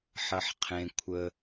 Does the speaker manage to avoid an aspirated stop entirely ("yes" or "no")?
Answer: no